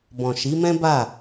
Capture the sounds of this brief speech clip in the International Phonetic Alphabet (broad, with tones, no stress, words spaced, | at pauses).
bɔ̃˨ʃi˨˦mɛ̃˦ba˦˨